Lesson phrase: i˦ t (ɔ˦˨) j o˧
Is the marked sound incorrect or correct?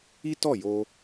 correct